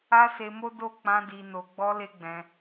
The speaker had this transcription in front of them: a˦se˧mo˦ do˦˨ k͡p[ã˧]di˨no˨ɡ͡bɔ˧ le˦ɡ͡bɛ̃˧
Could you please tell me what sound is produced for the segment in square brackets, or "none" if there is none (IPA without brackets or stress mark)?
ã˧